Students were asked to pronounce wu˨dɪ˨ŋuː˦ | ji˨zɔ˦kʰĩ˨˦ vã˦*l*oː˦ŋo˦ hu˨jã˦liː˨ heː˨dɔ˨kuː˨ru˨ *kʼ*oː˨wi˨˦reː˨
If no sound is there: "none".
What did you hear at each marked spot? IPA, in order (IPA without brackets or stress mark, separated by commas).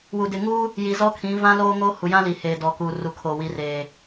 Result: l, kʰ